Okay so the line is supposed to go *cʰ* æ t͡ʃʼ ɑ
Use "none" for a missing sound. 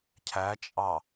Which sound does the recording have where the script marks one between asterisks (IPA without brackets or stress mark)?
cʰ